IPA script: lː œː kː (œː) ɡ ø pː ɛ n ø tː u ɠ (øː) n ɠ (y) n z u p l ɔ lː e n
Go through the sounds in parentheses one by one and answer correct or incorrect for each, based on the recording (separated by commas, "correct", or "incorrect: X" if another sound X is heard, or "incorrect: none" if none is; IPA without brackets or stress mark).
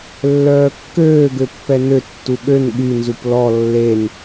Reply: incorrect: øː, incorrect: ø, correct